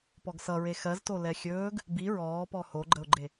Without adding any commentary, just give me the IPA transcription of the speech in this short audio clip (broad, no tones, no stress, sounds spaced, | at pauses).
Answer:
p ɔ ɡ s ʌ ɹ e x ɜ z t o l ɛ xʲ ɵː ɡ | b i ɹ ɔː p ɔ h o ɡ͡ǃ ə ʊ̯ ɡ͡ǃ e